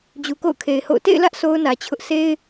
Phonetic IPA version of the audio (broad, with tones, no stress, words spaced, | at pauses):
d͡ʑu˨ko̰˦˨ʊ̯kʰe˨ɪ̯ho̰˦˨ʊ̯ tḛ˦˨ɪ̯lä˦ʔ sʰo˦ʊ̯nä˨t͡ɕʰʊ˦ʔ sʰe˦ɪ̯